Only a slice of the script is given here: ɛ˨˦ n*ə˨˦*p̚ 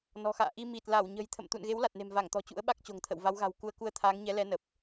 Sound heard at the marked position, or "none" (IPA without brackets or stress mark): ə˨˩